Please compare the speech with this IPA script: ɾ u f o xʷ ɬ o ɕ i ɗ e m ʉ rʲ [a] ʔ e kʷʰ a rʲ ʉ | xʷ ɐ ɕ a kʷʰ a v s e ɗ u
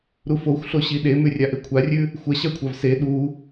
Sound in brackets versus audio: correct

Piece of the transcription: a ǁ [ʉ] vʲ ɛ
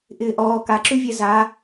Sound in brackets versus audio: correct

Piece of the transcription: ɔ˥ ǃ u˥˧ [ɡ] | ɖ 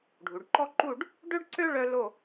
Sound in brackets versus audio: incorrect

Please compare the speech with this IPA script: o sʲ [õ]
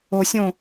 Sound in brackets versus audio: correct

